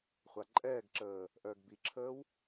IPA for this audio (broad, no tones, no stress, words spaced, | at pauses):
χʷaǃʼɛːɡǁəː | ʔœːɡbiǁʰəːw